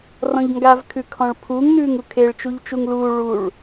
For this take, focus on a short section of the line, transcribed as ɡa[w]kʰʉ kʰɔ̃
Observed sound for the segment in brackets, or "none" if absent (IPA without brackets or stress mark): v